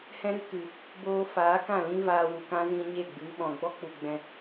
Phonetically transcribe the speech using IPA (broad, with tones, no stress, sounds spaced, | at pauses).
h ɛ̃˦ ɾ ɨ˦ k ɨ˨ | b oː˧ f aː˨˦ k ã˦˨ l ĩ˦ v aː˧ w u˨ k ã˦ z ĩ˧ ɲ e˦˨ ɡ͡b ɨ˨˦ ɓ ɔ̃˨ ɡ͡b ɔ˦ k͡p u˧ ɡ͡b ɛ̃˧